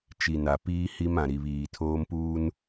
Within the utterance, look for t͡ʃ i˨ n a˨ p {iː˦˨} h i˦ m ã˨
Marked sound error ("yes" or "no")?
yes